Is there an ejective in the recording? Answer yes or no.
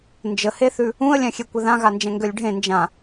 no